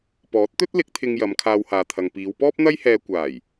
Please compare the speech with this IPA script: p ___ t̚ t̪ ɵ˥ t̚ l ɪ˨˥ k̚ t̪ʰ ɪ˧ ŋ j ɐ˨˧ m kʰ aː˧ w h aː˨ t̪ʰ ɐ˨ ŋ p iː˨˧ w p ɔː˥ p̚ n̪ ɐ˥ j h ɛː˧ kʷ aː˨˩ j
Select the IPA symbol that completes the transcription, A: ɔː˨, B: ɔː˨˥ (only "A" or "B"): B